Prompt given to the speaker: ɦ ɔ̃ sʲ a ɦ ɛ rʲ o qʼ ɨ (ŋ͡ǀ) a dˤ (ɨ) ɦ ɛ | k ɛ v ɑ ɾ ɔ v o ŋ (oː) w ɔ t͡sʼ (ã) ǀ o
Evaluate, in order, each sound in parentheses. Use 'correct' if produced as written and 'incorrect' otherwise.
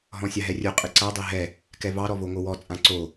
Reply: incorrect, incorrect, incorrect, correct

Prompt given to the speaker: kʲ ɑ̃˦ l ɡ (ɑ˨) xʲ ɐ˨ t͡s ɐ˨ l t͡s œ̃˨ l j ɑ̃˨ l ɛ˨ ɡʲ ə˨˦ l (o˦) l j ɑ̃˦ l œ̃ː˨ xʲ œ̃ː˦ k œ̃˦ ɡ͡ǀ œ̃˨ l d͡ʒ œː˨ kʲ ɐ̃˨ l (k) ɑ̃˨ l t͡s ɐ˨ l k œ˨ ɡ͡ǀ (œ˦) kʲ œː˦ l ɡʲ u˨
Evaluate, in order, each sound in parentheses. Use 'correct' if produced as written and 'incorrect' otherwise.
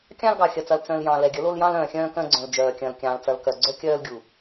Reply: correct, correct, incorrect, correct

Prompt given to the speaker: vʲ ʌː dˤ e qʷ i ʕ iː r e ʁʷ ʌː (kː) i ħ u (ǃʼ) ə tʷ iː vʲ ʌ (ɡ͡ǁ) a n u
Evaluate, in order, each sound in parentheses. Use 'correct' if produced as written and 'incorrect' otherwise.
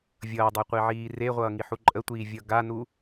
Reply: incorrect, correct, incorrect

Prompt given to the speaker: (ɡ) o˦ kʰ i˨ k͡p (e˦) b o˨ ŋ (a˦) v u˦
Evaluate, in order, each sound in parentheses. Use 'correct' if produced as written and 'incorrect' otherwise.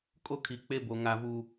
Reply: incorrect, correct, correct

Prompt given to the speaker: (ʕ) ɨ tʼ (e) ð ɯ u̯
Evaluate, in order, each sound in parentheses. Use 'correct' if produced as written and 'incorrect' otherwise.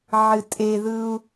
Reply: correct, correct

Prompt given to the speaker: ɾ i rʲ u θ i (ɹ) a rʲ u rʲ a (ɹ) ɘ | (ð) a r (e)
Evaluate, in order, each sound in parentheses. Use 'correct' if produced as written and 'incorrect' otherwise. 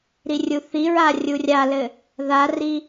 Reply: correct, incorrect, correct, incorrect

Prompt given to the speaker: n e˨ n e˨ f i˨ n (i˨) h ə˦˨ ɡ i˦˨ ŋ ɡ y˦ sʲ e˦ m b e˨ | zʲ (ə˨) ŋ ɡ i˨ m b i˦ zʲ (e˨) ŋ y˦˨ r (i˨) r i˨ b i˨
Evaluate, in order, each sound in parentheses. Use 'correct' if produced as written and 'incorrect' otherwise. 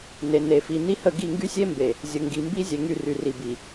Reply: incorrect, correct, correct, incorrect

